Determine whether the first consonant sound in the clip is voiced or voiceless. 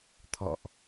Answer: voiceless